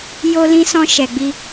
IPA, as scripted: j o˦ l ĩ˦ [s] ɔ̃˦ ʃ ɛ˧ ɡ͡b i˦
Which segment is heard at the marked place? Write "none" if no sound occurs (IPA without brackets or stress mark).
s